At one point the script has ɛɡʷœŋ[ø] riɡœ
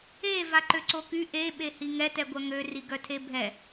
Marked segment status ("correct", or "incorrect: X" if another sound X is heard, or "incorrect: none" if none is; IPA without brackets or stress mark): correct